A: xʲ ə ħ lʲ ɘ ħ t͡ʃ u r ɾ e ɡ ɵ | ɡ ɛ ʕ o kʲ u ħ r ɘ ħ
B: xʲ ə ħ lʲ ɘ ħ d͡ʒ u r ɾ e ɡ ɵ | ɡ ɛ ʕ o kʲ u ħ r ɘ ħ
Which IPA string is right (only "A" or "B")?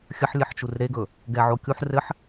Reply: A